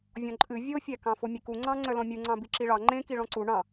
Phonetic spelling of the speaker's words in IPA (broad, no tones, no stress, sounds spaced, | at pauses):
vʲ ɔ̃ ǃʼ ɨ vʲ o fʲ æ k ɑ̃ f o mʲ e k u ŋ͡ǀ ɑ̃ ŋ͡ǀ œ l ɔ̃ mʲ u ŋ͡ǀ ɑ̃ b i ǁ i ɭ ɑ ŋ͡ǃ ẽ k i ɭ ɔ̃ ǀ u ɳ ɑ̃